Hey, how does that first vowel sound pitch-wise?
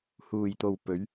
low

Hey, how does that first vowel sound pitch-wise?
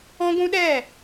high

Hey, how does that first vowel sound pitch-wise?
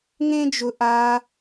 high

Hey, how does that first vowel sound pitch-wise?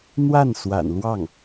falling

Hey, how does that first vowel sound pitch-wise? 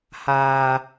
low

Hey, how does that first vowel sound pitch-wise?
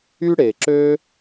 high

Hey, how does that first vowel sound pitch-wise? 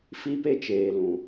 high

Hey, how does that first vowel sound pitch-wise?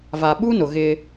low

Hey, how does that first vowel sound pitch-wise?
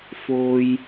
low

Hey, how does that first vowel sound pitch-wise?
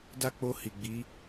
high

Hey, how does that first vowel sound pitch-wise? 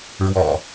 low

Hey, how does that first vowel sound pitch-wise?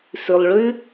low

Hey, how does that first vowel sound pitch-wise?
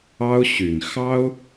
high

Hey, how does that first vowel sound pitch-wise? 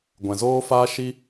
low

